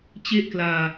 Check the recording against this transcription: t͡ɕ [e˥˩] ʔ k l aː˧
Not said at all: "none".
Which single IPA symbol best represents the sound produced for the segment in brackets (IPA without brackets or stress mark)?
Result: e˥˩